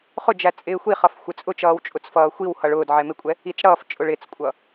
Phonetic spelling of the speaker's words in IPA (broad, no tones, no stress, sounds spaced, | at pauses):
χ ʊ d͡ʒ æ t͡sʼ ɪː xʷ i χ ʌ f xʷ ɪ t͡sʼ ʊ t͡ʃ ʌː w t͡ʃʼ ʊ t͡s f ʌː xʷ i w h ʌ ɭ ʊː d ʕ ɛ m ɪ kʷʼ ɛ | i t͡s ɽ ʌː f t͡ʃʼ ʊ ɭ ɪ t͡s kʷʼ ʌ